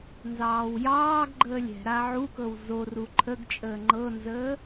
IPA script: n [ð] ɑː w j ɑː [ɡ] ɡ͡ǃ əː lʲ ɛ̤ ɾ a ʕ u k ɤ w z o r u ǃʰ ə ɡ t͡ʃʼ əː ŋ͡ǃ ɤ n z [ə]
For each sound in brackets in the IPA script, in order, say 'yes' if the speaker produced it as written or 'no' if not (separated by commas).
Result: no, yes, no